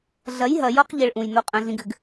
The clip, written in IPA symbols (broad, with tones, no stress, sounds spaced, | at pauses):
ɮ ɐ˨˦ j ɦ ɐ˨ j ɔ˦ q ʎ ɘ˦ ɭ ʔ ũ˨ j n o˦ qʼ ɐ̃˦ ɮ ĩ˦ ɡ ɘ˦ ɡ